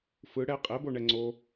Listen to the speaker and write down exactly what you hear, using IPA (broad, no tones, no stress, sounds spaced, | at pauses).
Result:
f ɯ ɽ ɛ qʼ ɛ b o ɳ ɛ ŋ͡ǀ o